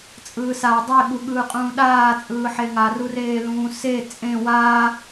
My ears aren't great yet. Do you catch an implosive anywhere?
yes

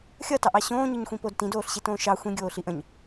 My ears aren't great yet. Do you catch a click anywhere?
no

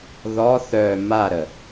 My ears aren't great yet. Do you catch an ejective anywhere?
no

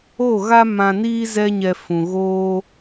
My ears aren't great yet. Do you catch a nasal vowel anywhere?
yes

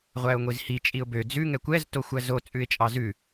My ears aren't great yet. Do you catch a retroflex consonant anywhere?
no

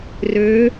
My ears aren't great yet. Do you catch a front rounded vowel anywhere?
yes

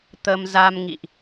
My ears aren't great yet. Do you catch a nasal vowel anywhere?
no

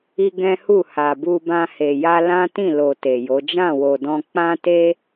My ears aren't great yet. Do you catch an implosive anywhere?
no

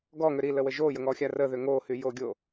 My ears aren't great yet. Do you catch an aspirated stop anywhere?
no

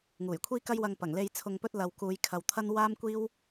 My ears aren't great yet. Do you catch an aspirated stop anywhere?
yes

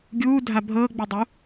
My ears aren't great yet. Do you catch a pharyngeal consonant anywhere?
no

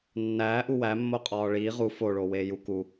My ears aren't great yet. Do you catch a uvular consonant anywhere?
yes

